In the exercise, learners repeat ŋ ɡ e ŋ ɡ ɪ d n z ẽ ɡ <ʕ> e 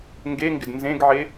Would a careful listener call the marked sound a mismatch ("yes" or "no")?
no